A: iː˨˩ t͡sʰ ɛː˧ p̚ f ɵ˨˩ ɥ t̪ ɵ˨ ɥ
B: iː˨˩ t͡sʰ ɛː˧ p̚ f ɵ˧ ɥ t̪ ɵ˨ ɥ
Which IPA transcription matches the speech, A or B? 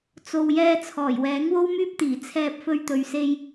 B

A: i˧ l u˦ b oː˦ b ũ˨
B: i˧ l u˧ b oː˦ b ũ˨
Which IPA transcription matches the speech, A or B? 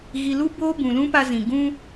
A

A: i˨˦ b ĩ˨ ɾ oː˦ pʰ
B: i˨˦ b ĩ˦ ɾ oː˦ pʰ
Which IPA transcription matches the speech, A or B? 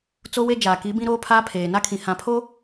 B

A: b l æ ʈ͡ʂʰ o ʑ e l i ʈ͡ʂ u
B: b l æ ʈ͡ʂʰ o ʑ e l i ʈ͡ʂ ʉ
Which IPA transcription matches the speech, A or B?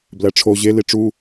A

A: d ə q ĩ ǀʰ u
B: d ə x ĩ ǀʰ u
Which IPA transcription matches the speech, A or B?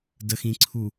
B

